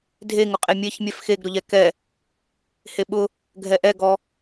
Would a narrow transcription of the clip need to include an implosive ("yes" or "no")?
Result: yes